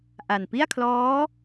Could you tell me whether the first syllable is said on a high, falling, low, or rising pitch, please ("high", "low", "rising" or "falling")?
low